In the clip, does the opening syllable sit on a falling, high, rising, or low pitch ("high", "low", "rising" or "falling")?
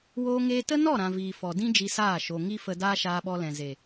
high